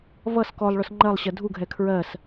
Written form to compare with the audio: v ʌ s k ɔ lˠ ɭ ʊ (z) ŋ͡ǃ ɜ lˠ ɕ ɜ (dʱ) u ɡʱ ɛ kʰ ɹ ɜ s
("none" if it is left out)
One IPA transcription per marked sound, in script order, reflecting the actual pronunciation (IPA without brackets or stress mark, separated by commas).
s, dʱ